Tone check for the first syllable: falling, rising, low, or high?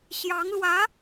rising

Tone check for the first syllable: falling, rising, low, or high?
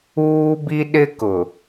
high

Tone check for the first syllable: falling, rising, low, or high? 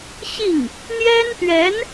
falling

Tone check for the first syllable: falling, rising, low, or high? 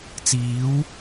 rising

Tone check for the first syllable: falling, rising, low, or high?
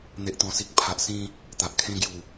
low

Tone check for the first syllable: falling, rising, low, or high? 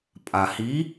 low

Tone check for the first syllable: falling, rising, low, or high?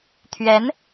rising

